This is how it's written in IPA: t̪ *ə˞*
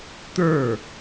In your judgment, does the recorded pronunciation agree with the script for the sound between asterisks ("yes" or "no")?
yes